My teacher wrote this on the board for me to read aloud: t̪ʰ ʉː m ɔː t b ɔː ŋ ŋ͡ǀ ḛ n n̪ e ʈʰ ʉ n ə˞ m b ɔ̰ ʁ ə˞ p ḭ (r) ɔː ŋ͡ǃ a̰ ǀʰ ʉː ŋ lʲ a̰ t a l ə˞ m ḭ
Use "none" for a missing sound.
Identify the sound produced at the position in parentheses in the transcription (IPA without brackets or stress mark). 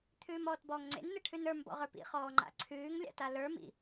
χ